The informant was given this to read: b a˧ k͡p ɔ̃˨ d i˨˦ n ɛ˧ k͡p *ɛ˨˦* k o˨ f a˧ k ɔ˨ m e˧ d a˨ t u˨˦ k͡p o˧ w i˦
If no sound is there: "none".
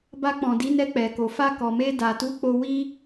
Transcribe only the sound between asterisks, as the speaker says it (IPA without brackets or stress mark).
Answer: ɛ˨